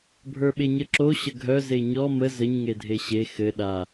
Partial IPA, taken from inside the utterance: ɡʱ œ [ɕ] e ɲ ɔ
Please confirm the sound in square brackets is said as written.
no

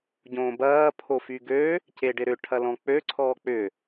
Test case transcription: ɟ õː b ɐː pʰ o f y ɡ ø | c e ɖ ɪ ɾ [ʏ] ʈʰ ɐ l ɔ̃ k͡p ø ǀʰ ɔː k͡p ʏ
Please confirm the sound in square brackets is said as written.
yes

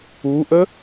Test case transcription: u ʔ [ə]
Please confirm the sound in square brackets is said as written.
yes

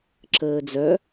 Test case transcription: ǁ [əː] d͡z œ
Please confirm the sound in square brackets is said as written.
yes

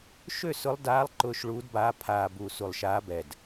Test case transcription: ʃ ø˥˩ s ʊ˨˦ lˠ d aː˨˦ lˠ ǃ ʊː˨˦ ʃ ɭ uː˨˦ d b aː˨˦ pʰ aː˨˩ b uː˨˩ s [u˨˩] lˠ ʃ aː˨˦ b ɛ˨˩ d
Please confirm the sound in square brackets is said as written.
yes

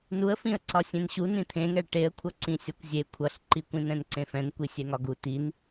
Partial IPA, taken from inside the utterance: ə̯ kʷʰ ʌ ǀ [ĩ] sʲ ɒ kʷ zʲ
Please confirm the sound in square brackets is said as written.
yes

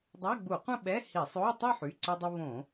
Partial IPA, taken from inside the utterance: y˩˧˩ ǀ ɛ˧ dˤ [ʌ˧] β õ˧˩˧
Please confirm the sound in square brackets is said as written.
yes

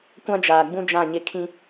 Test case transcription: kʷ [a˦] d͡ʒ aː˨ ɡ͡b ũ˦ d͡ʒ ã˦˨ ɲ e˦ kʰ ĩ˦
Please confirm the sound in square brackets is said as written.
no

